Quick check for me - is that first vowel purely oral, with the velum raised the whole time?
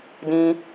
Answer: no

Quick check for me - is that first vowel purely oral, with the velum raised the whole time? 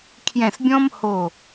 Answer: no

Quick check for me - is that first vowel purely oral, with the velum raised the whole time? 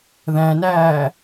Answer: no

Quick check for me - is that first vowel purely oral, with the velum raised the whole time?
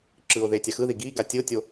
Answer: yes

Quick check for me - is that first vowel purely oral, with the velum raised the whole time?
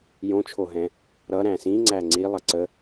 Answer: no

